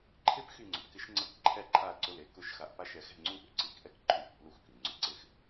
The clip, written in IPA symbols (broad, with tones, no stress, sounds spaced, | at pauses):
ǃʰ ɪ˦ p x y˦˨ ŋ͡ǀ ʊ˩ p k ɪ˦ ʃ ŋ͡ǀ ɐ˦˨ k ǃʰ ɛ˦ ǃʰ a˦˨ l ǀ ʊ˦˨ l e˨˦ k ʊ˦˨ ʃ x a˧˩˧ ʔ p a˦ ʃ ɛ˨˦ x ɛ̤˦˨ ŋ͡ǀ u˦ ʔ ṳ˧˩˧ ǀ i˧˩˧ k ʔ ɛ˧˩˧ k ǃʰ y˧˩˧ p ṳ˧˩˧ l u˧˩˧ x k y˩ ŋ͡ǀ ʊ˧˩˧ ǀ ɪ˦˨ x